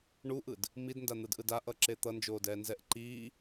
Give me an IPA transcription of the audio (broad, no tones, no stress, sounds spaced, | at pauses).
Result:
ɳ u ʔ ɯ d | m i d n d a n̪ ɯ d ʔ ɯ d a ʔ ʌ ǁ e t̪ ʌ n d͡ʒ oː d ɛː n z ɛ ʔ ǃ iː